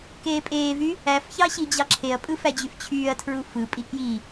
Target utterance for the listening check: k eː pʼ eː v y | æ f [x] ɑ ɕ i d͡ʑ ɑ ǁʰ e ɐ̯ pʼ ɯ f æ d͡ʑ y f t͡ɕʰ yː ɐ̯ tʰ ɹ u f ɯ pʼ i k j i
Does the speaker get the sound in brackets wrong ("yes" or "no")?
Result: yes